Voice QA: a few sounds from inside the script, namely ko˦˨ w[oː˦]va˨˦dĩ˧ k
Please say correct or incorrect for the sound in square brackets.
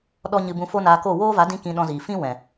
correct